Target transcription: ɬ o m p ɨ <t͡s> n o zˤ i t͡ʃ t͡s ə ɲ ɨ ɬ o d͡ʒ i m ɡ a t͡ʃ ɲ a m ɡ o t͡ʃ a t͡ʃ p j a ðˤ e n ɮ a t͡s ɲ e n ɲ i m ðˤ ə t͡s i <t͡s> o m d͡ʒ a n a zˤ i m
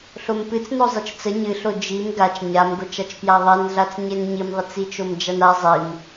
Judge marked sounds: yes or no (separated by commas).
yes, no